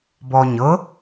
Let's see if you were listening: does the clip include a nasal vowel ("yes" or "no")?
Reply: no